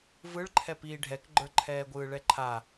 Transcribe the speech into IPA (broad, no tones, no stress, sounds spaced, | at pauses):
v ɯ ɭ ǃʰ ɛ p iː ɖʱ ɛ k ɡ͡ǃ ə˞ ǃʰ ɛː ɡʷ ɯː ɭ ɛ ǃʰ a